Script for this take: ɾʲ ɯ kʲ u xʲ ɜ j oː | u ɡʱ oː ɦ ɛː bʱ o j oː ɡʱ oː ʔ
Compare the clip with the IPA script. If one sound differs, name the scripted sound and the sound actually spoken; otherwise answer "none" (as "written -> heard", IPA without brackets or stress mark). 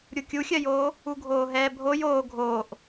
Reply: ɯ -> u